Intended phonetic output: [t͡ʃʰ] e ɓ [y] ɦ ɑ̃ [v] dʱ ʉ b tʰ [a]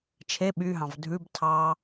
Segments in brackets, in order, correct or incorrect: correct, correct, correct, incorrect: ɑ

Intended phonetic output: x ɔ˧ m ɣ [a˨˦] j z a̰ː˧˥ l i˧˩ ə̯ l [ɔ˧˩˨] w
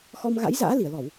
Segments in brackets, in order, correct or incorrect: incorrect: a̰˧˥, correct

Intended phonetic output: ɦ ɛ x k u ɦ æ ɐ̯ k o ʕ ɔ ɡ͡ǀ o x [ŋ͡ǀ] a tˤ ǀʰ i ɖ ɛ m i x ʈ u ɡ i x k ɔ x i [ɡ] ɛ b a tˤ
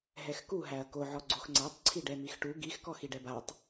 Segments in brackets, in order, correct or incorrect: correct, incorrect: ɖ

